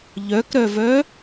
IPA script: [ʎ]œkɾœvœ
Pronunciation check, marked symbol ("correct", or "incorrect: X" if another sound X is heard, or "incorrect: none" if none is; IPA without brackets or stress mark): correct